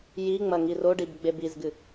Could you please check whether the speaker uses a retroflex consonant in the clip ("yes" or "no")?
yes